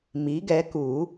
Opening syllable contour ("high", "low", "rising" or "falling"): rising